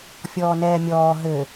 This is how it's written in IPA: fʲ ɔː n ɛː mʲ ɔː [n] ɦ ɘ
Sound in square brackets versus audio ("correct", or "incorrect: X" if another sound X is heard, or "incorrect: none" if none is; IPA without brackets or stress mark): incorrect: none